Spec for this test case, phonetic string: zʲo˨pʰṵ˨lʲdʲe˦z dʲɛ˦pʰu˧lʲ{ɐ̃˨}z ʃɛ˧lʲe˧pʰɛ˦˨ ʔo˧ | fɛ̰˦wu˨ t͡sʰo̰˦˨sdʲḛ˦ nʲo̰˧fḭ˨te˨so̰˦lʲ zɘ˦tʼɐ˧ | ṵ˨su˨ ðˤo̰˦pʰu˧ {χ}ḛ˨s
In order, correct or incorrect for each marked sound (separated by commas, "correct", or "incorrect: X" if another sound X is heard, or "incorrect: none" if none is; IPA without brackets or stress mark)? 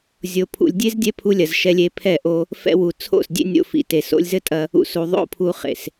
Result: incorrect: ɐ˨, correct